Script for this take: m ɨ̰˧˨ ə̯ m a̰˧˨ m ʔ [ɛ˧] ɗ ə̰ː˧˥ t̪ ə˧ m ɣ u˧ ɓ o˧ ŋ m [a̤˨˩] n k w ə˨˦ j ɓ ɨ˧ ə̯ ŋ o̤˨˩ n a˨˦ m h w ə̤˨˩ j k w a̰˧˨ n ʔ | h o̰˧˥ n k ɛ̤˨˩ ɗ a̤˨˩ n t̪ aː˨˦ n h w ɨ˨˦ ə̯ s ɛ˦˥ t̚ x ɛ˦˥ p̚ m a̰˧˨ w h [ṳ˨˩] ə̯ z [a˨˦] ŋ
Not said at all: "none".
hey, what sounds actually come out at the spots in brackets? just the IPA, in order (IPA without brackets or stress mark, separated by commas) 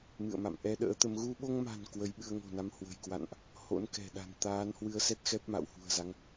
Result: ɛ˧, a̤˨˩, ṳ˨˩, a˨˦